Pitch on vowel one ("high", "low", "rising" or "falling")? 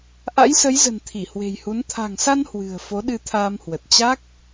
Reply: rising